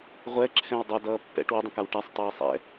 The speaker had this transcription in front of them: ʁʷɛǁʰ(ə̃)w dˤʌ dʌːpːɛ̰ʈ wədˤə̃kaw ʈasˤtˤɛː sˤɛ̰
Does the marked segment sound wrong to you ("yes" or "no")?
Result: yes